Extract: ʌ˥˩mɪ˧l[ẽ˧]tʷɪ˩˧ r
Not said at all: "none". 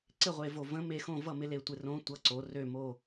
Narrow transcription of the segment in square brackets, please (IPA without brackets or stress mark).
e˧